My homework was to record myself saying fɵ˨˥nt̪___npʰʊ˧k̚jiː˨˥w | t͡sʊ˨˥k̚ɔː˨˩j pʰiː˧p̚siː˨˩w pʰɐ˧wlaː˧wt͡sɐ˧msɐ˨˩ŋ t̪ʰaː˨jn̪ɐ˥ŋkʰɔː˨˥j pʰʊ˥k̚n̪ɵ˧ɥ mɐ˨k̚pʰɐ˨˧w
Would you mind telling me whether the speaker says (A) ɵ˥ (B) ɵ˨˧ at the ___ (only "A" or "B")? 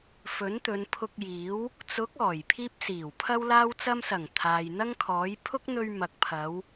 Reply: B